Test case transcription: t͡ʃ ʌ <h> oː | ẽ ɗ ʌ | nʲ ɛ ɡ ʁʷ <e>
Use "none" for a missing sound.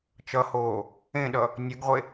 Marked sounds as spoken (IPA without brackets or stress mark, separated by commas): h, e